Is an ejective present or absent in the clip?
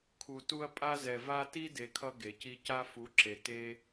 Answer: present